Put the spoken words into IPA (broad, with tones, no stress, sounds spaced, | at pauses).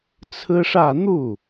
t͡sʰ ɹ̩˥ ʂ ä˥˧ n̪ u˥˩